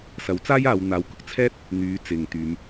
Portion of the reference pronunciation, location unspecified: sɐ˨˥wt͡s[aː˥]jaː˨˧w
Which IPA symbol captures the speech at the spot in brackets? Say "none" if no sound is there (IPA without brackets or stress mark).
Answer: aː˥